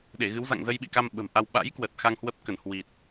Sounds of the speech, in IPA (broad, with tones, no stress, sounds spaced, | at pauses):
ɗ e˧˩ ɣ ɨ˨˦ w z a̰˧˨ ŋ z ə˧ j ɓ ḭ˧˨ k a˧ m ɓ ə̤˨˩ m ʔ a˧ w ɓ a̰˧˥ j k w ə˨˩ t̚ x a˧ ŋ h w ə˦˥ p̚ k ə˧˩ n h w i˨˩ t̚